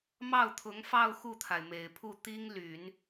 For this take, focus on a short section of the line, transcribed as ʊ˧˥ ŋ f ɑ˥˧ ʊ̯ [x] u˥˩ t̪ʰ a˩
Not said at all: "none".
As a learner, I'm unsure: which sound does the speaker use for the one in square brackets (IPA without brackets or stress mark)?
x